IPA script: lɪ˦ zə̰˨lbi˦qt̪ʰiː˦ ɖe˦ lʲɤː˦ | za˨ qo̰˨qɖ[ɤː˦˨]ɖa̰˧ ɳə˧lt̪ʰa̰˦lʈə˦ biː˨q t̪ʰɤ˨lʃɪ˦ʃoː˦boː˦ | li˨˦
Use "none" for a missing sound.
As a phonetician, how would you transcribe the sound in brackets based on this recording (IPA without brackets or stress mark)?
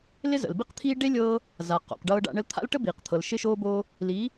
ɤː˧